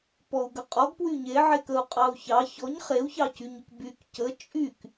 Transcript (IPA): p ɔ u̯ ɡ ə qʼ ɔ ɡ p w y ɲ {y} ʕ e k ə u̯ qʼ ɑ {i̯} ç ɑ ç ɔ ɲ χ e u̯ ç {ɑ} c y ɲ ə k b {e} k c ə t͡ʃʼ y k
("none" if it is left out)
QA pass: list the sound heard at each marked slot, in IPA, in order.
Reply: e, u̯, ɑ, y

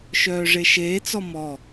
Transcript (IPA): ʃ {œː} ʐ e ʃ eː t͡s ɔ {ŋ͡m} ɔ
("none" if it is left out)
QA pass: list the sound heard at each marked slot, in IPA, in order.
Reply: œː, m

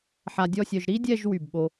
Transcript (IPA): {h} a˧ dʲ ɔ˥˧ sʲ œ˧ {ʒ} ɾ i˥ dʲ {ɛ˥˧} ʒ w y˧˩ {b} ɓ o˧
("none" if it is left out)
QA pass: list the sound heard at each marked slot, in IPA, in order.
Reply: ħ, ʒ, ɛ˥˧, b

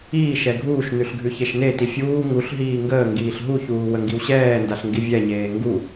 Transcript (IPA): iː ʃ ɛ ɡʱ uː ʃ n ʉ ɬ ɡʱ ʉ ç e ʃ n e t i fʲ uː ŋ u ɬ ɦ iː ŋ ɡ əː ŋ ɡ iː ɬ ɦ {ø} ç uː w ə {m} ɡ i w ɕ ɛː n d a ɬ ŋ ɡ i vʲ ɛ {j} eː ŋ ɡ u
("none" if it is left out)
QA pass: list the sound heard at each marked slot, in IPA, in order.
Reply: u, ŋ, ɲ

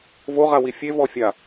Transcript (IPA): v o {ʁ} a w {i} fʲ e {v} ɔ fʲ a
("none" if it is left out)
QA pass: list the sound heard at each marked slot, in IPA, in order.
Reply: ʁ, i, v

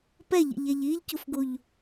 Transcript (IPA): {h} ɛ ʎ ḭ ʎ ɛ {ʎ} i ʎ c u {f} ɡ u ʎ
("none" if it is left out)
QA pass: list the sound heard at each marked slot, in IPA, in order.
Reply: p, ʎ, f

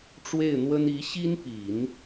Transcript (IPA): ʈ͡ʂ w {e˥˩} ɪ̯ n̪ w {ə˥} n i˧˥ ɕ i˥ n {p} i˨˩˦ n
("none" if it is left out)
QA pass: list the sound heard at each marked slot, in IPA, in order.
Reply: e˥˩, ə˥, p

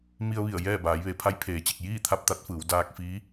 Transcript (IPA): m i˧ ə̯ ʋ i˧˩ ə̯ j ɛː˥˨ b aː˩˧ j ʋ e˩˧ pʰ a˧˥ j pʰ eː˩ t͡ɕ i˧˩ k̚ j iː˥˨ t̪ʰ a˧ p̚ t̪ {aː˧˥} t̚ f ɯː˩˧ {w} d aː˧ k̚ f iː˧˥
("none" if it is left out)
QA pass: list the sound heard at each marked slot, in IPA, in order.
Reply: a˧˥, w

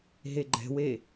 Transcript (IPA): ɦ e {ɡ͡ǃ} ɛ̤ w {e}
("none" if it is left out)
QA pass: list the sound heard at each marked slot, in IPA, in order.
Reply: ɡ͡ǃ, e

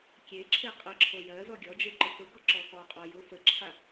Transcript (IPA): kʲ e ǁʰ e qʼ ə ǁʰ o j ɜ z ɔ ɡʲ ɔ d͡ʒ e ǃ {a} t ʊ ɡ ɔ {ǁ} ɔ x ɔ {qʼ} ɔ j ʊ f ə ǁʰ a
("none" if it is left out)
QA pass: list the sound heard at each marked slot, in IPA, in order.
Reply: ə, ǁ, qʼ

